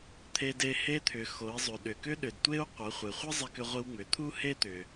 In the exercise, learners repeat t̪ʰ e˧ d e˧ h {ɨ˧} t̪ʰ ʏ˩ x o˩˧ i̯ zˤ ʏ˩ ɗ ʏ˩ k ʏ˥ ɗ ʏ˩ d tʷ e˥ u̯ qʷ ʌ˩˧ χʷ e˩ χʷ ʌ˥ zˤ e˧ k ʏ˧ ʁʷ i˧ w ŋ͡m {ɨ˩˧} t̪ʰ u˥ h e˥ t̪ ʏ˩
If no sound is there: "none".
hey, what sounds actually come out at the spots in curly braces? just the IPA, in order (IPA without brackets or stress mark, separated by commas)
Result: e˧, ʏ˩˧